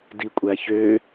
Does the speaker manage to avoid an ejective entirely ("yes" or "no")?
no